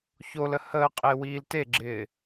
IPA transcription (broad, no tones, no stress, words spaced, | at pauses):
çolə həː qʼɪːwiːlteɡ͡ǁɪː